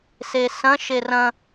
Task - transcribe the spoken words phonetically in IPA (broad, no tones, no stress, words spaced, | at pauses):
sesɐ̃ ʃerɐ̃